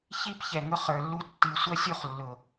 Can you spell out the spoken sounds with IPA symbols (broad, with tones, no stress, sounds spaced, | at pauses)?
ç i˦ p ç ɛ˨ ŋ ʊ˧ χ ə˞˨ lː u˧ tː i˨ sʷ ʌ˦ sʲ u˦ χ lː ʊ˨